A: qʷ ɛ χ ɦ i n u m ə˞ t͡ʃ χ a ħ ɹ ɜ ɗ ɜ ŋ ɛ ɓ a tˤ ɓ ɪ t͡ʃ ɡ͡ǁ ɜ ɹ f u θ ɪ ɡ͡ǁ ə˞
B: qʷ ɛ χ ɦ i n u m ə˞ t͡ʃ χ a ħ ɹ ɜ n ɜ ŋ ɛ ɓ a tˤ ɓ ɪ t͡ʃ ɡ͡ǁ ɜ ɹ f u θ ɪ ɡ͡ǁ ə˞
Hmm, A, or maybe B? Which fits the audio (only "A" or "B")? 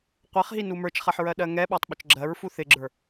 A